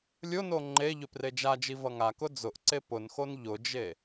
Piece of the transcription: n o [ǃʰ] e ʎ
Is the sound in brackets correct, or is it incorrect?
incorrect